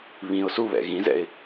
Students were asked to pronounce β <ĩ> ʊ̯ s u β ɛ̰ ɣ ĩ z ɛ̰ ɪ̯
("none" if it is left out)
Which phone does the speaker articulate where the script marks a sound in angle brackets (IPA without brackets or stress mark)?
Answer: ĩ